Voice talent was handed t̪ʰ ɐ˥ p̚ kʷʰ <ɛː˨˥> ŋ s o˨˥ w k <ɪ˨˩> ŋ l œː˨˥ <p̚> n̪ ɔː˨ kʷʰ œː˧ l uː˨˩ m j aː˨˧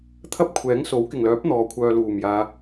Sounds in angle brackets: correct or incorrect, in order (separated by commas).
correct, correct, correct